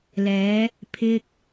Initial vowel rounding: unrounded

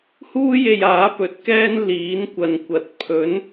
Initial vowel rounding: rounded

